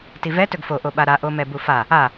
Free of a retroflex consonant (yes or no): yes